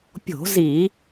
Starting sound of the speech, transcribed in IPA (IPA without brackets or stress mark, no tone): pʲ